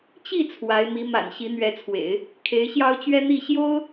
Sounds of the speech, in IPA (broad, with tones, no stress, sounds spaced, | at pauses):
t͡ɕ i˥˩ t͡sʰ w a˧˥ ɪ̯ m i˧˥ m a̰˨˩ n ɕ i˧˥ n̪ ɥ ɛ˧˥ t͡sʰ w ḛ˨˩˦ ɪ̯ | kʰ e˧˥ ɪ̯ ɕ j ɑ˥ ʊ̯ t͡ɕ ɥ ɛ˥ n̪ i˥˩ ɕ j o˥ ʊ̯